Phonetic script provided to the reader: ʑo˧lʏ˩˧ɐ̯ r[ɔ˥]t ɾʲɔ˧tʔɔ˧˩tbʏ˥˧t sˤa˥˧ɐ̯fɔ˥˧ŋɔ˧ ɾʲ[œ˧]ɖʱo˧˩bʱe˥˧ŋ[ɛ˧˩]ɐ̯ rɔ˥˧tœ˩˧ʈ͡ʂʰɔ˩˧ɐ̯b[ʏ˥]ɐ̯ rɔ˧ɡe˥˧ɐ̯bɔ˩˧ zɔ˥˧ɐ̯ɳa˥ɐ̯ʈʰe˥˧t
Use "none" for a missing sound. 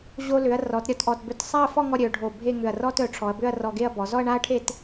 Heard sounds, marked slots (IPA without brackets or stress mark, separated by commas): ɔ˩˧, œ˩˧, ʏ˧˩, ʏ˥˧